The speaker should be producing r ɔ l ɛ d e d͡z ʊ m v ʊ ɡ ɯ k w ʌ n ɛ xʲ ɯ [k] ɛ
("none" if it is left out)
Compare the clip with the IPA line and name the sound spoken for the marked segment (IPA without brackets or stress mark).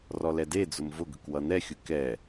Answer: k